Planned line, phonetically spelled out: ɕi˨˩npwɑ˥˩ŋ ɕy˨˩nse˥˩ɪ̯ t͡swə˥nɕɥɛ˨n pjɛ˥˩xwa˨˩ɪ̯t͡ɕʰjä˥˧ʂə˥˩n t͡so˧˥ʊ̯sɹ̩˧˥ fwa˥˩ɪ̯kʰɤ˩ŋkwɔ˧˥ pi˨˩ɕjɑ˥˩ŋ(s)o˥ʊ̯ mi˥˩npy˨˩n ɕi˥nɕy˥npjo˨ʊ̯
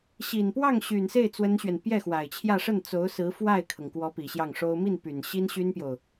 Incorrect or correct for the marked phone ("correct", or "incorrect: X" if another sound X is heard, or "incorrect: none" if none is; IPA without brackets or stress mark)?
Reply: incorrect: ʂ